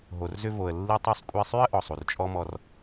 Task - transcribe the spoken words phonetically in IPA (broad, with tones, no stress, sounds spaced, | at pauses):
ɦ o˩ r z ʏ˧ v o˩ ə̯ lː i˧ tˤ y˧ sˤ kʷʼ i˧ sˤ y˥ ə̯ ʔ ɔ˩ sˤ u˩ r t͡ʃʼ ɔ˥ m ɔ˧ r